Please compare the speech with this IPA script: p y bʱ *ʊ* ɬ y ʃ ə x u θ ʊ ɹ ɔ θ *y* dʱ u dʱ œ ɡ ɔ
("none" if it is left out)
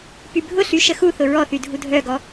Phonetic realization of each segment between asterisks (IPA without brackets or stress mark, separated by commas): ʊ, y